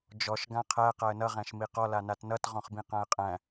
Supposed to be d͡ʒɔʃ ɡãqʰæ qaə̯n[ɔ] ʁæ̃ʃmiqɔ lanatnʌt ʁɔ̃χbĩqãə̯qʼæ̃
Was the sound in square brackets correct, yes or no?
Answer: no